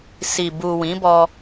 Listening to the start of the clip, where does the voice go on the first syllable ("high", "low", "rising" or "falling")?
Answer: low